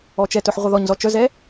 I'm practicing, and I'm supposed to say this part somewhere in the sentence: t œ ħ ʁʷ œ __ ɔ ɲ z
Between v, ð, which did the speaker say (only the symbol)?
ð